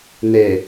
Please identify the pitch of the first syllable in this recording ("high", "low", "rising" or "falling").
low